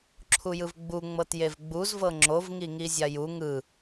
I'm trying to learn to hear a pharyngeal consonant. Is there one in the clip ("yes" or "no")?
no